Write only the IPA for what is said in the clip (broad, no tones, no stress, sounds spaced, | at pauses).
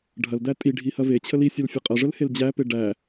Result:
ɖʱ ɐ l d æ tʼ i ɖʱ i h ɐ v e t͡ɕʰ ə l i sʲ ɐ l fʲ ə qʼ ɐ ʐ ə l h e l d͡ʑ æ p e ɖ æ